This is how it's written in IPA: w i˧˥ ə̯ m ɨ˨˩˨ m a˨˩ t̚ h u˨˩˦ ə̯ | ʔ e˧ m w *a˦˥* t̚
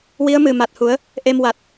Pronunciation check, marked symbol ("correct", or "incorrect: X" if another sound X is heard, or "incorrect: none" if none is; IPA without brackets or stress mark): incorrect: a˨˩